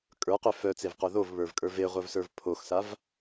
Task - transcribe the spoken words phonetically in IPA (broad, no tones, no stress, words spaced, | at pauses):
kʼə˞qø fœt͡sevqo ðovβə˞vkʼə˞ veʁʷœvsə˞v pʰoxsav